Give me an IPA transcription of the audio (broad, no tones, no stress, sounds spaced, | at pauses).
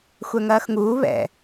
xʷ ɛ ŋ ɐː x ŋ uː β ɛ̰